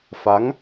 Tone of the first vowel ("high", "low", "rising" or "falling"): rising